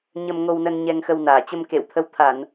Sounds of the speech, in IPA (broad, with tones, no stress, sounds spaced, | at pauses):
ɲ ə˧ m ŋ o˧ w n ə˧ n ɲ ɛ˧ ŋ x ə˧ w n aː˧˩ t͡ɕ ə˧ m k ḛ˧˨ w t̪ʰ ə˨˦ w t̪ʰ a˧˩˨ n